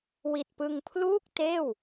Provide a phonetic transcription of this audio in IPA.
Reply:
w i˨˩ t̚ p ɯ˧ ŋ pʰ l uː˥˩ k̚ t eː˥˩ w

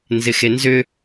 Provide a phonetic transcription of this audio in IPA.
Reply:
n z ɪ x e n z ʏ

